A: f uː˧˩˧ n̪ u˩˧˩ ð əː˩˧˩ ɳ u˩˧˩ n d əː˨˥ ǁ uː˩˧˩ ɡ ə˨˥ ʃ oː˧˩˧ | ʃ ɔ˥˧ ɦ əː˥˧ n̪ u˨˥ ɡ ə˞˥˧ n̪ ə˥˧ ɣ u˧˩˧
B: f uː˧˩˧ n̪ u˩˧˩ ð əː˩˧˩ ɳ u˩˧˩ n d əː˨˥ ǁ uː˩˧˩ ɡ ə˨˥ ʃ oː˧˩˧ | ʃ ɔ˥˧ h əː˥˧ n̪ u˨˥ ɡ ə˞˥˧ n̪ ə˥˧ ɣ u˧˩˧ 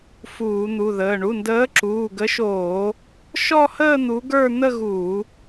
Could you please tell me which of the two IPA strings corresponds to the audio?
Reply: B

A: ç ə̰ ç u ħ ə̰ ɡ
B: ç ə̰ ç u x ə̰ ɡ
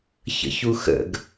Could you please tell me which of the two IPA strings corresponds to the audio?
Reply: B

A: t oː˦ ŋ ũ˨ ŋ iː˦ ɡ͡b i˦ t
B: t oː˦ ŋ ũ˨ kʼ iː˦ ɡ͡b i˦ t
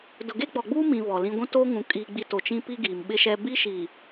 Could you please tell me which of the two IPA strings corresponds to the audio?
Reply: B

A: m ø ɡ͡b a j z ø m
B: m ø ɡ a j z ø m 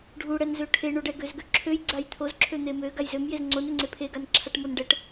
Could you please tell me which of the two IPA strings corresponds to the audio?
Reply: B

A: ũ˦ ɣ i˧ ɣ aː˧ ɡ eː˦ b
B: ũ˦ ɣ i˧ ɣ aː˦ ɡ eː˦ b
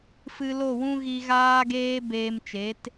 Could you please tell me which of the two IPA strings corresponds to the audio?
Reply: B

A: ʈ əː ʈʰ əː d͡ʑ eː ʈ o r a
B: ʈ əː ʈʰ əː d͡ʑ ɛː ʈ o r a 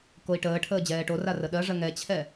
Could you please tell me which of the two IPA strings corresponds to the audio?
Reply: B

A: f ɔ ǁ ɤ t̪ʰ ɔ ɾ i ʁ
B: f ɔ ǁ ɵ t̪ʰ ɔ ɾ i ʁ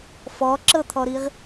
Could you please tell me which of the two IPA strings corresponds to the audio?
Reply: A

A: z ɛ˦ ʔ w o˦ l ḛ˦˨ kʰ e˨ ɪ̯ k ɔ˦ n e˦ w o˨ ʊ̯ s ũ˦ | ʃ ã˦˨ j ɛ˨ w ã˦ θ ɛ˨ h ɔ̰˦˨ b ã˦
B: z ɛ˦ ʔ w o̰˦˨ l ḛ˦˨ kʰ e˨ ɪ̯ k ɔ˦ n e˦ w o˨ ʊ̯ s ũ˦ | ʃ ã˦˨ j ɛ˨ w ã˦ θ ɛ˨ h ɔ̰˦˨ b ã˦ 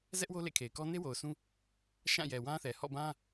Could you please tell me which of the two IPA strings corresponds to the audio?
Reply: A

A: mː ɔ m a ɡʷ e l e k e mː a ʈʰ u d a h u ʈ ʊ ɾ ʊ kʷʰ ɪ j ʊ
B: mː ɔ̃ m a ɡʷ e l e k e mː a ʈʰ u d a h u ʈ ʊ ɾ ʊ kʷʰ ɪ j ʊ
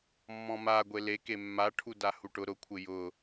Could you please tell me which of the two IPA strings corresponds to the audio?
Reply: B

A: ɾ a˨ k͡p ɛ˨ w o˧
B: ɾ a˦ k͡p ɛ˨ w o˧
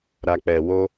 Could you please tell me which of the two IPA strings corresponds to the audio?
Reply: A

